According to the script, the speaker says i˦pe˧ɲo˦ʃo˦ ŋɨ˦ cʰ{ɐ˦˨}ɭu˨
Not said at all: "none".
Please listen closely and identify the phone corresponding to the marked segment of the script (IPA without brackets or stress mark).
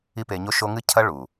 ɐ˦